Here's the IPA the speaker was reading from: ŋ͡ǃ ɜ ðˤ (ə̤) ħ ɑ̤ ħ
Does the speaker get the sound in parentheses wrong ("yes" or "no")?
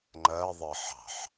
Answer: yes